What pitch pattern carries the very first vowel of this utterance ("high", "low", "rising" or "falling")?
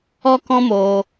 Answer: high